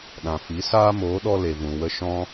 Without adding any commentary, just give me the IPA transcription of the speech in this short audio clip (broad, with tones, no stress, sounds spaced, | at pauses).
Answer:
ɗ ã˨ f i˨˦ s aː˦ m oː˨˦ ɗ ɔ˦ l e˨ v ũ˨ w ə˧ ʃ ɔ̃˦